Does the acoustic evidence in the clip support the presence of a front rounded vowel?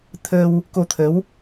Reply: no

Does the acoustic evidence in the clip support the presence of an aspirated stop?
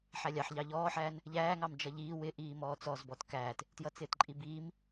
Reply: no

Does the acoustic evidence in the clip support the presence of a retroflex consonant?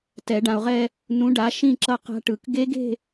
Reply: yes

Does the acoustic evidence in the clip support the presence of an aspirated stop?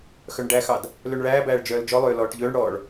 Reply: no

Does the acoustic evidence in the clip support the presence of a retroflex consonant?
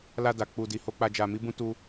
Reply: no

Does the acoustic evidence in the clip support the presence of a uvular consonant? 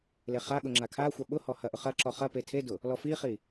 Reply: yes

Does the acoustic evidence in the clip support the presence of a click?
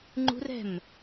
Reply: yes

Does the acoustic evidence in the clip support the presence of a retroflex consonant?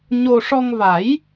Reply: yes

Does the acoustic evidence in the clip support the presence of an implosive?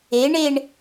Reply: no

